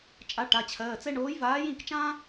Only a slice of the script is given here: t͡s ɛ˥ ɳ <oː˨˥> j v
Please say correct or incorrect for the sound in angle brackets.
correct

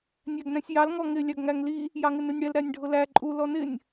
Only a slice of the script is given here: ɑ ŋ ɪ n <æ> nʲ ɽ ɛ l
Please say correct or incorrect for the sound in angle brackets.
incorrect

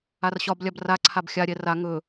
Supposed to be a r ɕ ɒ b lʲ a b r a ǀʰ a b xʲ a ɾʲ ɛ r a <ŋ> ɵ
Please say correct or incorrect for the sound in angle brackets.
correct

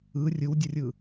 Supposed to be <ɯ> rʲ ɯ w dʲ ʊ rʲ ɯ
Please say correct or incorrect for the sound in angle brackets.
correct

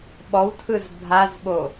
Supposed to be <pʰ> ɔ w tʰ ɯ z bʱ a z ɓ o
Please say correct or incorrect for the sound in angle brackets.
incorrect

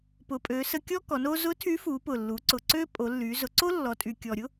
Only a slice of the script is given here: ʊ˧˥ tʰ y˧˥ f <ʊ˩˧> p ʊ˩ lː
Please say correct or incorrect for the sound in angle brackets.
incorrect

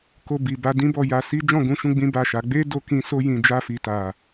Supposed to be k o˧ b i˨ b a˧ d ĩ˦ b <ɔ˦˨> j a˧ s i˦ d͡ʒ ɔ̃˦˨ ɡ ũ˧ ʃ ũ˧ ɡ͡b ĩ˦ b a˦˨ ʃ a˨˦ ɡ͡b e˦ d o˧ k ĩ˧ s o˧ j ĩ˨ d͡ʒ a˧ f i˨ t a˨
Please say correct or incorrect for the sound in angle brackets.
correct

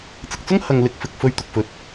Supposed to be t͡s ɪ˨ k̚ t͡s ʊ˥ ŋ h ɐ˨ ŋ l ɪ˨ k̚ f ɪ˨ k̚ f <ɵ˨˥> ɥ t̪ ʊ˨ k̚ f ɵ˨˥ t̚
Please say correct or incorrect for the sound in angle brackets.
incorrect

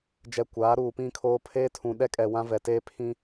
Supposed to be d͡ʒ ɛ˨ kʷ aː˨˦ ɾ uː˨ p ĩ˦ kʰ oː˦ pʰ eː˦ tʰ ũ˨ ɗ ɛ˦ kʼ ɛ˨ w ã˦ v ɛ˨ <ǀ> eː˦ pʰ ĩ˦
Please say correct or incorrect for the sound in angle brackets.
incorrect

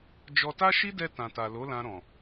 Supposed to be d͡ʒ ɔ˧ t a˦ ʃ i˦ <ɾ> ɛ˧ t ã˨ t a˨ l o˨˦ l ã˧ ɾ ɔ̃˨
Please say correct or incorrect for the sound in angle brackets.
incorrect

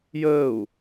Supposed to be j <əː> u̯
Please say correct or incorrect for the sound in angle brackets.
correct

